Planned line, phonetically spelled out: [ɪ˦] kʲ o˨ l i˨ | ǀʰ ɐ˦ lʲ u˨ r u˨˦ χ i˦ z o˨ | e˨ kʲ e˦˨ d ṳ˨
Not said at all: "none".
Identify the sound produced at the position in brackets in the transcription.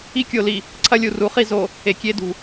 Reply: i˦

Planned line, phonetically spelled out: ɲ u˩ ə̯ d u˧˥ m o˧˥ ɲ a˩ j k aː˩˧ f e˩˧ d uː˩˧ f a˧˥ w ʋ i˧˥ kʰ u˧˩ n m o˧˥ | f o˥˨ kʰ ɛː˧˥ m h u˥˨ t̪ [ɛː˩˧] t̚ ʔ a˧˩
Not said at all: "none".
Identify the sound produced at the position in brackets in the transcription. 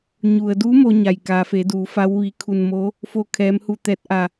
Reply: ɛː˧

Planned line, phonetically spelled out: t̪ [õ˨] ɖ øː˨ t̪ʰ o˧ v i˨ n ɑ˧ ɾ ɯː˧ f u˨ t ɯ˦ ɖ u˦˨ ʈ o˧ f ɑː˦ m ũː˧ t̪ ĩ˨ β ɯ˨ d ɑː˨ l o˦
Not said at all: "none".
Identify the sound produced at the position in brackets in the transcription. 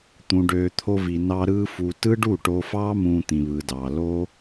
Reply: ũ˨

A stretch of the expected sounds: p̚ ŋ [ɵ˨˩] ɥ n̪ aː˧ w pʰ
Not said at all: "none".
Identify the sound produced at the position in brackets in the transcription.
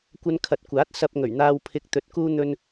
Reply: ɵ˨˩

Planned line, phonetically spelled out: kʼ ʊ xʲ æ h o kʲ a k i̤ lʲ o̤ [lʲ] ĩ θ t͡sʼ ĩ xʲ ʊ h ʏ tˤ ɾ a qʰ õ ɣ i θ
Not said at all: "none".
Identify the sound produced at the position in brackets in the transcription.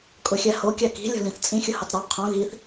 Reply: l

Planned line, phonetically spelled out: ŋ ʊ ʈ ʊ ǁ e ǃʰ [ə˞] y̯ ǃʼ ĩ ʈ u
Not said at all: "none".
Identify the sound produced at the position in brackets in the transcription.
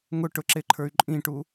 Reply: ə˞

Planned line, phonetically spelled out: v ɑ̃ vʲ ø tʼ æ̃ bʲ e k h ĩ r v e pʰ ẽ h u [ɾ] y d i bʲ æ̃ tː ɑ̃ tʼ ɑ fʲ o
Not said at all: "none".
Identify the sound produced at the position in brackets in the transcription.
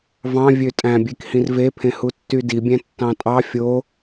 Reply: tː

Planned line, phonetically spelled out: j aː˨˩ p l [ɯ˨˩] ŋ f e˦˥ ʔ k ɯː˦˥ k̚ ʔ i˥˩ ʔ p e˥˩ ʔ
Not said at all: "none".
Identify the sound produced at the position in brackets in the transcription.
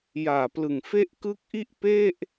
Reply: ɯ˨˩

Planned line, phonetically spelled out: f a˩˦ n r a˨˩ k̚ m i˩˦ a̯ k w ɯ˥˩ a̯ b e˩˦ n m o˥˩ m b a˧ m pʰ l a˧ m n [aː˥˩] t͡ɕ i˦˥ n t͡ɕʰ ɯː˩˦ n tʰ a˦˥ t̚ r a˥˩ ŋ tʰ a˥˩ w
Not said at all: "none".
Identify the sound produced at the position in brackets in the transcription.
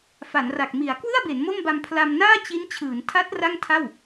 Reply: aː˥˩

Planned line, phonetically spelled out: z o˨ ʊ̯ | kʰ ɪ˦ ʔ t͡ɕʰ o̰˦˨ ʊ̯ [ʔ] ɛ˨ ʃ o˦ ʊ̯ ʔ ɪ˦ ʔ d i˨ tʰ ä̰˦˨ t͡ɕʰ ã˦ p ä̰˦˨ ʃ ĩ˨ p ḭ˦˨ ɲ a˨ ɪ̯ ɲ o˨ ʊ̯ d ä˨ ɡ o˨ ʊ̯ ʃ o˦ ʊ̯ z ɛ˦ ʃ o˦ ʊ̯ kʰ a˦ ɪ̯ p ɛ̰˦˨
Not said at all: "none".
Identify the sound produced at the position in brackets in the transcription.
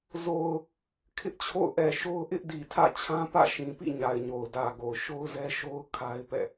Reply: ʔ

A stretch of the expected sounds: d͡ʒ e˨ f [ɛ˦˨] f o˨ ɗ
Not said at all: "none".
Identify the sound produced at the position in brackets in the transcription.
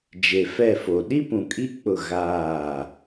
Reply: ɛ˦˨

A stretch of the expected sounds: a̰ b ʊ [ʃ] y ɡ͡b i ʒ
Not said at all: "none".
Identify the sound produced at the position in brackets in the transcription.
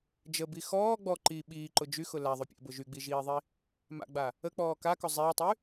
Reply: ʒ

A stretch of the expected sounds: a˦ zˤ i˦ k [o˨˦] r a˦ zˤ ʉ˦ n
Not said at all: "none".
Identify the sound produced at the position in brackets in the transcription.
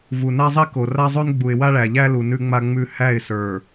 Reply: o˨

